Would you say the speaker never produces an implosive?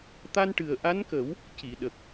no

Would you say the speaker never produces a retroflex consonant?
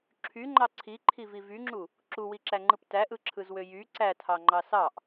yes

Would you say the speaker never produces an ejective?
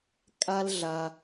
no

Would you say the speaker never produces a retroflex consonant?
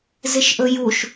yes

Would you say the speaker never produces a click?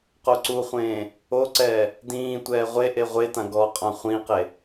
no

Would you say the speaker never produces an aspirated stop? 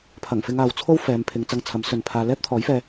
no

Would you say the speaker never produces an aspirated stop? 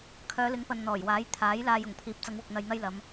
no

